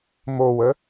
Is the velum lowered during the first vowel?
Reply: no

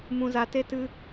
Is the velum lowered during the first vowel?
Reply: yes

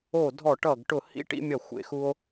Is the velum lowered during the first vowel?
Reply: no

